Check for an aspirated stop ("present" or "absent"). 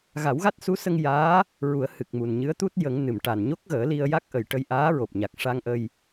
absent